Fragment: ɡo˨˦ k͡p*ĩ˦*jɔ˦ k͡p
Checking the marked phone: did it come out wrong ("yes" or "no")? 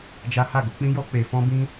no